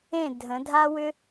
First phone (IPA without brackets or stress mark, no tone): ẽ